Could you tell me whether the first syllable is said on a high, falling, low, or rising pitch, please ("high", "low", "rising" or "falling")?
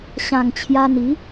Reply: low